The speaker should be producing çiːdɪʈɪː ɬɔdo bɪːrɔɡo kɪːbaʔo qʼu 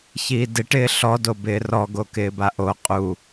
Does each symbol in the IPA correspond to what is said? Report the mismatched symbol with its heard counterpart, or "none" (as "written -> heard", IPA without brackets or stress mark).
none